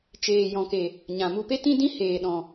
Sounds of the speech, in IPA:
t͡ʃ eː˨ j ɔ̃˨ k e˨ | ɲ ã˨ m u˧ p e˦ t ĩ˦ d ĩ˦ h eː˨ ɗ ɔ̃˨

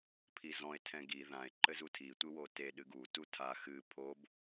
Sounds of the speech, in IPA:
pʰ i z ɔ̃ e̯ tʰ ɛ̃ ɡ i ð ã e̯ ǃ ɘ z u tʰ i tʷ ɨ w o t e ɗ ɨ ɡ u t u tʰ a x ɨ pʰ o b

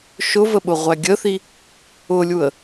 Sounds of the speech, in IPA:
ʃ ʊ v ə ɓ ʊ ʁʷ æ ɡʲ ə θ i | ʊ lʲ u ə̯

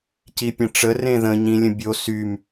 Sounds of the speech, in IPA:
c i pʲ ə̃ ʈ͡ʂ ə r ẽ ð ə̃ ɲ ĩ lʲ ə̃ bʲ o s y m

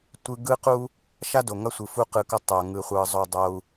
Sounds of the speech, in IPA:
tʷ ɯ˦ ɡ ɯ˦ q u˦ | ʃ a˦ d o˨ ŋ ʌ˧ sʷ ɯ˨ f u˦ q ɯ˧ k ʌ˦ tˤ o˨ ŋ ɯ˧ χʷ ɯ˧ zˤ o˧ dˤ o˧ u̯

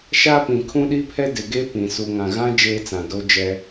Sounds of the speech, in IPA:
ʃ a˦ p ĩ˨ kʰ ũ˦ ɗ i˦ pʰ ɛ˦ d ɪ˨ ɡ e˦ p ĩ˨ s u˨ ŋ ã˨ ɣ ã˦ d͡ʒ eː˦ t͡s ã˨ d o˦ d͡ʒ ɛ˦

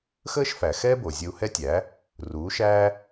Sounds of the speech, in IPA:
x əː˥ ʃ f æ˩ x ɛ˥ b o˩ zʲ ə˧ u̯ h ɛ˥ tʲ æ˩˥ | r uː˩˥ ʃ æː˥

